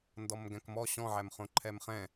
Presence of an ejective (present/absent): absent